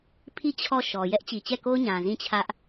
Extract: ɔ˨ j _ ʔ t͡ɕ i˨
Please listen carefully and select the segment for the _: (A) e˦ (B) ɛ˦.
B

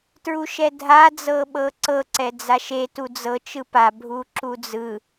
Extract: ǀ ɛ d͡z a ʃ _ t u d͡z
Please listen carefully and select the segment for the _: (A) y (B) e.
B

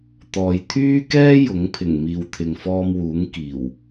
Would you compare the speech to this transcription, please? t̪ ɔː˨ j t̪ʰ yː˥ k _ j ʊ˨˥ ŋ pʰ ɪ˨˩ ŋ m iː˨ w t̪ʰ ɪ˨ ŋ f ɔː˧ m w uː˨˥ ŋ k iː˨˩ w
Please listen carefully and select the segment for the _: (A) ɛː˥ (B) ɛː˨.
A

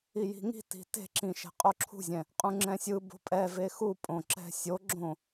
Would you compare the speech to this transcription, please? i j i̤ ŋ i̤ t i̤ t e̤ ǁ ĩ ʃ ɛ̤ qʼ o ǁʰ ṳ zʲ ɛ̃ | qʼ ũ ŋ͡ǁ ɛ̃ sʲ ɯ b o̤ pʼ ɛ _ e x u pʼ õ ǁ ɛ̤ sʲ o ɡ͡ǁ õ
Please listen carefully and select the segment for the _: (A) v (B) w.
A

